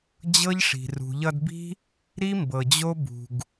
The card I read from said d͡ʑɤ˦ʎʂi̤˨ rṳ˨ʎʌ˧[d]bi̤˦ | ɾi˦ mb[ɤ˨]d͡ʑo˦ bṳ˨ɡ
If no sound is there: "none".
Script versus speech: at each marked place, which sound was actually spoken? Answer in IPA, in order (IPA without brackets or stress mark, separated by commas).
d, ɤ˨